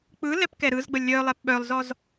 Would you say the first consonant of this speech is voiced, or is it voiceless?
voiceless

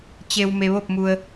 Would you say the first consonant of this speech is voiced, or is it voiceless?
voiceless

